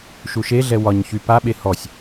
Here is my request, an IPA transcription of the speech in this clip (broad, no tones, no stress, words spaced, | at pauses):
ʃuʃeɮɛ wɒɲçy paɓe hɔsʲ